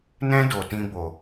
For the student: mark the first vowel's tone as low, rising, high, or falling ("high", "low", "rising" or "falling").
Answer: high